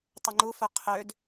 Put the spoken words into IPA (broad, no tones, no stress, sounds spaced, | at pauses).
tˤ ʏ ŋ͡ǃ u f œ qʰ ø d